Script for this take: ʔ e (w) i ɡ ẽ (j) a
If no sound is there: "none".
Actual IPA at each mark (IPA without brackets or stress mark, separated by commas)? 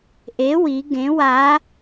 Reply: w, w